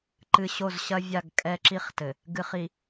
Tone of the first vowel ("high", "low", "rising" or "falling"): low